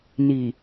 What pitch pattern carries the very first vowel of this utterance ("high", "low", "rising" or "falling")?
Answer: low